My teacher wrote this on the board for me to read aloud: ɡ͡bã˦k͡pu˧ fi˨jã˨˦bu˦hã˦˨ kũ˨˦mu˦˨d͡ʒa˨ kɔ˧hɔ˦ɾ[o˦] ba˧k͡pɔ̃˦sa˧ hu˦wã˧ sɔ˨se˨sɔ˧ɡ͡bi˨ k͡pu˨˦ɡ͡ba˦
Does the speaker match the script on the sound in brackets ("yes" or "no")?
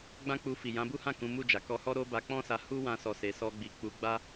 yes